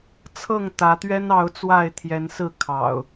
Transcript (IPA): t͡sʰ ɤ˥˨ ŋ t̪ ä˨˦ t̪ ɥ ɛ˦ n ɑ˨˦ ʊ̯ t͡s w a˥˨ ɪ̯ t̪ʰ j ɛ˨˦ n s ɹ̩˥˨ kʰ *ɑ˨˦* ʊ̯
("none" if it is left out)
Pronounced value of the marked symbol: ɑ̰˨˩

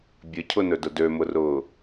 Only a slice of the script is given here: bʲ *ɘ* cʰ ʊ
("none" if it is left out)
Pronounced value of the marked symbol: ɘ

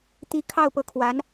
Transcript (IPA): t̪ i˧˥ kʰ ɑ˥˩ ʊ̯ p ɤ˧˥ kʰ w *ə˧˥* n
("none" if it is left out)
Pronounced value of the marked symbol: a˧˥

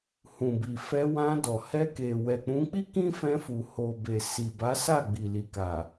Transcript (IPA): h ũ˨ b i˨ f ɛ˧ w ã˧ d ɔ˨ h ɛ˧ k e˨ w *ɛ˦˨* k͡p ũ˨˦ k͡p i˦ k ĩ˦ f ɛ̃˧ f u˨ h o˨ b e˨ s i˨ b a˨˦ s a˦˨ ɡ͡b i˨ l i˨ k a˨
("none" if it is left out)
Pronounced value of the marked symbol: ɛ˨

